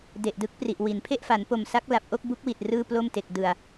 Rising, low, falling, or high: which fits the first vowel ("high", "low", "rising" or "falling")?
low